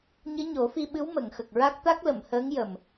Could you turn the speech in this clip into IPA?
ɲɨ˧˥ɲo˨˩˦fi˧ɓɨ˧˥w mə˨˩˨ŋxə˨˩k̚ɹa˦˥k̚ t̪a˦˥k̚lə˨˩˨mhəː˧˥ŋ jə˨˩m

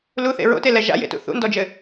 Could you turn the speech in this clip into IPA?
luθḛ ɹo̰telɛ ʒa̰jḛtṵ θṵndɔd͡ʒɘ

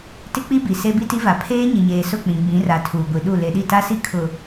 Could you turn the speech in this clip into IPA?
tɪ˦k͡pi˦bi˨ se˦bi˦ti˦va˨ pʰeː˦ɲɪ˨ɲeː˨ sʊ˦˨k͡pĩ˨ɡ͡bĩ˨˦ra˨ tʰuː˨ɡʷi˨ɗu˦˨ le˨ɗi˦˨ ta˦si˦ kʰʊ˨

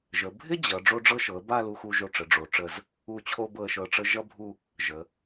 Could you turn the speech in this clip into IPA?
ʒə˩˧ bʱɪ˥ d͡ʑʌ˩˧ ɖ͡ʐo˧ɖ͡ʐɤ˧ʃɤ˩˧ə̯ ba˥˧lu˧xu˧ ʒo˧˩ʈ͡ʂə˩˧ ɖ͡ʐo˩˧ʈ͡ʂə˧˩z | u˧˩t͡ɕʰo˧ bɤ˧˩ə̯ʃɤ˧˩ ʈ͡ʂə˧ ʒʌ˥bʱu˥˧ | ʒə˩˧

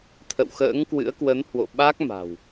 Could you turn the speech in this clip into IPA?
t̪ʰə̰˧˨wxə̰ː˧˥ŋkwɨ̰˧˥ə̯ kwə˨˦nhwo̰˧˨ ɓa˦˥k̚ma̤˨˩w

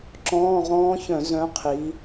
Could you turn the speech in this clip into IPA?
ǁɔ̃ː˧˥˧ʁɔ̃ː˦˥çœ̃˧˩˧ zœ̃˨˥ qʰi˩˧

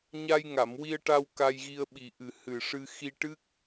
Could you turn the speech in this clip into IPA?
ɲa˧jŋa˨˩˨mwi˧ə̯ʈa˧w ka˧jɣi˧ə̯ɓi˨˩ ʔɨ˨˩ hɨ˨˩ʂɨ˧ xi˧ʈɨ˦˥k̚

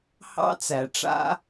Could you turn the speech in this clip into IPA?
hɑ̰˦t͡sæ˨ʈ͡ʂa̰˦

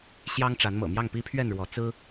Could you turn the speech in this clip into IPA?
ɕjɑ˦ŋʈ͡ʂa˨˦n mɤ̰˨˩mjɑ˥˨ŋ pi˦pʰɥɛ˥˨nɻwɔ˨˦ t͡sɹ̩˦

